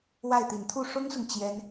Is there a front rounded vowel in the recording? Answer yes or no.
no